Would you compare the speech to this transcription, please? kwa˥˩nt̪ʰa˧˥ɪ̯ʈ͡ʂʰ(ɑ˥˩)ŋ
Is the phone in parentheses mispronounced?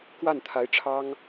yes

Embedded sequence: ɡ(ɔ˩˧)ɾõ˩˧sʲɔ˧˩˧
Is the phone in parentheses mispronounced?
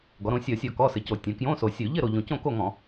no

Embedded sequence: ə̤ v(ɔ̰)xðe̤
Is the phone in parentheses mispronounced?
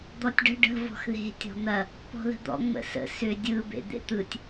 yes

